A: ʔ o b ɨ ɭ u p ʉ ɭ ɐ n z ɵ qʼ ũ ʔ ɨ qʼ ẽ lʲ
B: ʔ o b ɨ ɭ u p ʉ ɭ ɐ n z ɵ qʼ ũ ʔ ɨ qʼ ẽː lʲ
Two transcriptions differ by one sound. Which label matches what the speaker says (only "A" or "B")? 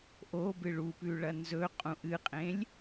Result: A